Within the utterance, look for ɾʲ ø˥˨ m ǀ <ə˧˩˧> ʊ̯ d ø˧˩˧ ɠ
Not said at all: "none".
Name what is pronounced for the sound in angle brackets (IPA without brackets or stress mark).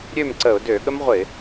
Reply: ə˧˩˧